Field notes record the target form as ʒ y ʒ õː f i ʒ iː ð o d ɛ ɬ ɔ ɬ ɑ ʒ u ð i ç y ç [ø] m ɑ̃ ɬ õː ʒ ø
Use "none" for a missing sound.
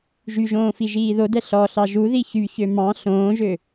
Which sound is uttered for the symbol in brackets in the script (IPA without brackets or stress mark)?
ø